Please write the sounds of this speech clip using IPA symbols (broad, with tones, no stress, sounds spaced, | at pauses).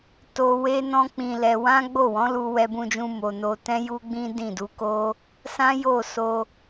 t o˧ w e˧ n ɔ̃˧ k͡p ĩ˧ l ɛ˧ w ã˦ ɡ͡b o˦˨ w ɔ̃˨˦ l u˧ w ɛ˧ b ũ˧ d͡ʒ ũ˧ m o˨ n o˧ t ɛ̃˦ j u˦ ɡ͡b ĩ˦ d ĩ˦˨ d u˧ k o˦ | s ã˦ j o˦˨ s o˧